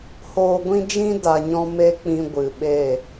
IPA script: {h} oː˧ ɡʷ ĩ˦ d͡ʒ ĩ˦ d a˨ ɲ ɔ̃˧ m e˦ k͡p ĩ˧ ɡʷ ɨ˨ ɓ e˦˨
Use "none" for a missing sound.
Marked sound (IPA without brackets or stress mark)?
h